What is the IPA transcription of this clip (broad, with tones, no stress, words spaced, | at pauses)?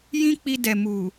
jĩ˦k͡pi˧dɛ˨ mu˨